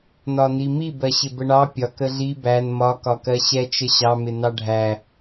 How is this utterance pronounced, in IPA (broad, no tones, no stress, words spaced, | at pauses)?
nɒnimi bɜɕɪbəɳɑ pʲɒk əɮi bæn mɒ kɒkɜɕɛt͡ʃ əɕɑ mɪnɑɖʱæ